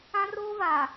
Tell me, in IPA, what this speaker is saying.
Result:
ã˦ r oː˦ v aː˨

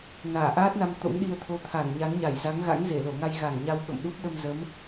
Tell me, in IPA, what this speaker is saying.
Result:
n aː˧˩ ʔ aː˦˥ t̚ n a˧ m t̪ o̰˧˥ ŋ ɗ i˧ ə̯ t̪ʰ o˨˦ t̪ʰ a˧˩ n ɲ a˨˦ n ɲ a˧˩ j z a˨˦ ŋ ɣ a̰˧˥ ŋ z e˧˩ l o˧˩ ŋ a˧ j ɣ a˧˩ ŋ ɲ a˧ w ɓ ə̰˧˨ m ɗ u˦˥ p̚ ɗ ə˧ m z ə˨˦ m

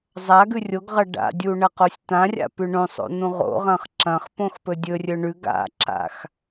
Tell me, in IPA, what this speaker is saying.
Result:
zˤ a ɡ ʉ rʲ o ɡ ʁ ɐ ɖ a̰ dʲ u ɳ ɐ q o sʲ t̪ ã rʲ a̰ p ʉ ɳ õ sˤ o̰ n̪ ũ ʁ o̰ ʁ ɐ̃ χ ǁ ɐ̃ χ p õ x p ɵ dʲ ɵ rʲ ɵ ɳ ʉ ɡ a̰ ǁ a̰ x

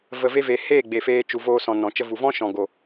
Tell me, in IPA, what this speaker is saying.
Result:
v ə˨ v e˧ v e˨ h eː˦˨ ɡ͡b e˨ f eː˧ t͡ʃ u˨ v oː˧ s ɔ̃˨ n ɔ̃˨ t͡ʃ ə˧ v u˨ v ɔ̃˦ ʃ ɔ̃˨ ɡ o˨

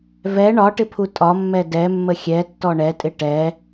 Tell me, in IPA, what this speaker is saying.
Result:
v ɛ ɳ ɒ ʈ ɪ pʰ u tʼ ɒ mː ɛ d ɛ mː ə xʲ ɛ tː ɔ ɳ ɛ tʼ ɪ ʈ ɛ

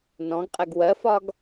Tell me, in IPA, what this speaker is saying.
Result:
n ɔ̃ ɡ qʼ ɛ ɡ w ɜ f ɒ ɡ

